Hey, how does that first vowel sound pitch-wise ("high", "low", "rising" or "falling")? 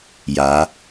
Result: rising